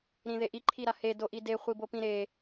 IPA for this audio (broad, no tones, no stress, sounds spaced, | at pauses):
ɾ ĩ ð e ʔ i ǃʰ i ɾ a h e d o ʔ i d e χʷ i b o p ĩ ɾ e